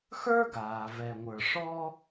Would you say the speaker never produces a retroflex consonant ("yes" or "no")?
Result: no